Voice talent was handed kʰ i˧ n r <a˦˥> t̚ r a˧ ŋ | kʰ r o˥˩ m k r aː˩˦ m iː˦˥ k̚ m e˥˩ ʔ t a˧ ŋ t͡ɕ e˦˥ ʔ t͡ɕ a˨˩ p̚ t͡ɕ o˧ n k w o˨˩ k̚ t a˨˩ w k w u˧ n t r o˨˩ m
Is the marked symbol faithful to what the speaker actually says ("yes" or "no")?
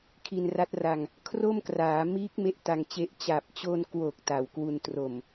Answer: yes